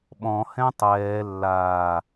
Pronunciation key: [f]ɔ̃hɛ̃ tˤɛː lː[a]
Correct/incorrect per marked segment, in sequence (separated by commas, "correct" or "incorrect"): incorrect, incorrect